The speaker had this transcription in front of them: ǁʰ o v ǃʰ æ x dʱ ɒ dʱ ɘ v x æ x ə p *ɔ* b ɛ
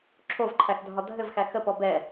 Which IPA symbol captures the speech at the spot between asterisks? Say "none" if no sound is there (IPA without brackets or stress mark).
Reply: ɔ